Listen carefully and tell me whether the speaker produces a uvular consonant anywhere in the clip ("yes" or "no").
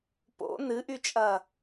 no